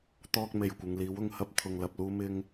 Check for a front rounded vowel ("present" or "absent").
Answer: absent